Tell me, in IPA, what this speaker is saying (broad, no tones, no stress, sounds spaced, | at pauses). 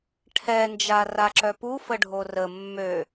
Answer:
ʈʰ ɛ n d͡ʒ a r a ǁ œ p u f ə ɖʱ o r ə mː ø